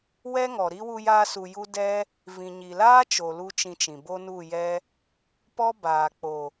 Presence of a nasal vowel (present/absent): present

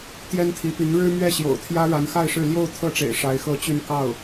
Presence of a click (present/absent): absent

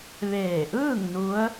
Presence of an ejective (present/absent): absent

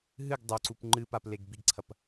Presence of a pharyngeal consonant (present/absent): absent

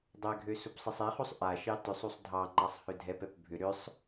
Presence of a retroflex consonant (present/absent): absent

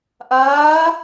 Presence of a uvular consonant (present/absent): absent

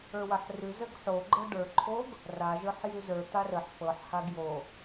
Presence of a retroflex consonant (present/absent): present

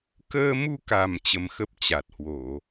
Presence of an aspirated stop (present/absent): absent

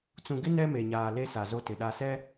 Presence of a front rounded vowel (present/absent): absent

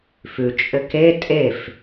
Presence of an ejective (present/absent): present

